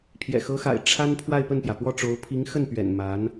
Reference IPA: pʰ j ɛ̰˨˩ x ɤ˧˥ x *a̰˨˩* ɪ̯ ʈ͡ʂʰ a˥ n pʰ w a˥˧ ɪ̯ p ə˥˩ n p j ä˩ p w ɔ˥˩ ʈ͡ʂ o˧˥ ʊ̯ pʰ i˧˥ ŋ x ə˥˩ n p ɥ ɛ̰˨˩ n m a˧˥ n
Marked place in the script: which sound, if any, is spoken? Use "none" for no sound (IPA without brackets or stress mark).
a̰˨˩